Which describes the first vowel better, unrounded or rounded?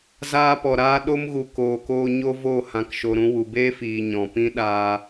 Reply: unrounded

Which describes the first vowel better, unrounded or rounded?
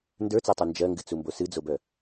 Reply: unrounded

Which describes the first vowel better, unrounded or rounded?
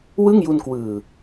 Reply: unrounded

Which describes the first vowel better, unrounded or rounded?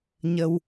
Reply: unrounded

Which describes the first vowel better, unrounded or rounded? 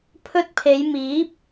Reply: rounded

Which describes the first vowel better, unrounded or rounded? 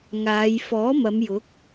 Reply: unrounded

